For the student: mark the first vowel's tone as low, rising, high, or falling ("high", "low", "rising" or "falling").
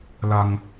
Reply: low